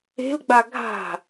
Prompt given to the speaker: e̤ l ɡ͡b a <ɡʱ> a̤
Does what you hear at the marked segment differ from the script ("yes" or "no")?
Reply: no